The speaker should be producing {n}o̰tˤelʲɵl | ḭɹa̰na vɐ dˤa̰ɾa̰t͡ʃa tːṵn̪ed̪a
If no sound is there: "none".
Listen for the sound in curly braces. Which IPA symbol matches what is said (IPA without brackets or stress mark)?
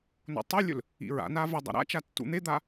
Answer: n